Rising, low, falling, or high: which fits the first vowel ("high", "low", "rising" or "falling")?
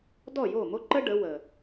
falling